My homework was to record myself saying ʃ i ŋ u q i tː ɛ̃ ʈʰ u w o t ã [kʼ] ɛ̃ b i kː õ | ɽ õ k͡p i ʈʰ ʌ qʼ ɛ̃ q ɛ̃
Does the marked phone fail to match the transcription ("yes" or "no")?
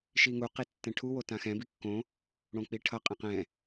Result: yes